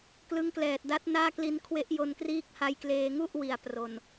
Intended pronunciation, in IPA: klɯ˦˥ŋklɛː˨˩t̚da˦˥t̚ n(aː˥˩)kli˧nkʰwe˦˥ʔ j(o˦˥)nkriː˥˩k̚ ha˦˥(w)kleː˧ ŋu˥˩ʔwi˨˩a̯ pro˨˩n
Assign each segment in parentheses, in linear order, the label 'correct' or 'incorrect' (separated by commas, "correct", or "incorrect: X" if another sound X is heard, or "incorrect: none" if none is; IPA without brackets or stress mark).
correct, incorrect: o˧, incorrect: j